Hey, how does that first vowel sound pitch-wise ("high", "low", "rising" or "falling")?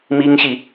high